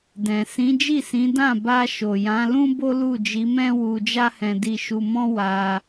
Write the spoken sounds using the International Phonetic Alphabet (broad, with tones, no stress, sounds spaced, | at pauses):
d ɛ̃˨ s ĩ˨˦ d͡ʒ i˦˨ s ĩ˨˦ d ã˦˨ b a˧ ʃ o˨ j ã˨˦ l ũ˦ b o˦ l u˦˨ d͡ʒ i˨˦ m ɛ̃˦ w u˧ d͡ʒ a˦ h ɛ̃˧ d i˧ ʃ u˧ m ɔ̃˦ w a˧